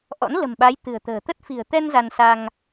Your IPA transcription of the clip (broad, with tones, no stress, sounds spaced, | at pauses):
ʔ ɔ̰˧˥ n l ə̤˨˩ m ɓ a˨˦ j t̪ ɨ̤˨˩ ə̯ t̪ ə̤ː˨˩ t̪ ə˦˥ t̚ f i̤˨˩ ə̯ t̪ ɛ˧ n z a˧ n s a˧ ŋ